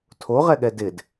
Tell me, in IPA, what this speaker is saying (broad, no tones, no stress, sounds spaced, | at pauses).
tʰ o ʁ ɛ ɠ ɛ d ɪ d